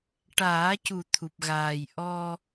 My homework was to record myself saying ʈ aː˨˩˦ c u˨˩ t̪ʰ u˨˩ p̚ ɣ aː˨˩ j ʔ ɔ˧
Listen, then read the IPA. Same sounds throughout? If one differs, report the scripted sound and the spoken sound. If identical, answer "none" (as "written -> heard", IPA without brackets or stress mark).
none